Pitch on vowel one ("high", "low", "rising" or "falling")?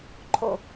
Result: falling